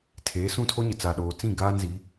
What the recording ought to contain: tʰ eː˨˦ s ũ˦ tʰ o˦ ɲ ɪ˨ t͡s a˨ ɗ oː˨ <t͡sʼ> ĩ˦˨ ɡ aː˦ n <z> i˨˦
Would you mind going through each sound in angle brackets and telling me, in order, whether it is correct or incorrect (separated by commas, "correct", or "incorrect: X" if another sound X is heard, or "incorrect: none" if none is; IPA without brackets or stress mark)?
incorrect: t͡s, correct